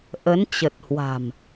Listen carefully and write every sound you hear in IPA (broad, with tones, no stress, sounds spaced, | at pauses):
ʔ ə˨˦ n t͡ɕ ə˨˩ t̚ h w a̤˨˩ m